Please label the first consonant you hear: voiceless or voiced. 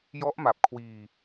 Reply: voiced